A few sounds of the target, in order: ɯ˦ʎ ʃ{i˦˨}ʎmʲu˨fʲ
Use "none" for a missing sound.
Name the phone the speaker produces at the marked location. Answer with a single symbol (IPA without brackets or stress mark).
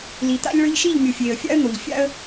i˦˨